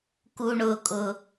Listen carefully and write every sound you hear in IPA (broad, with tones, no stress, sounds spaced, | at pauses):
k u˦ ɳ ʊː˦ kʼ ʊ˦